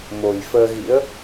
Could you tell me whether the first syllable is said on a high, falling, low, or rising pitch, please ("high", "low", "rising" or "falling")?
low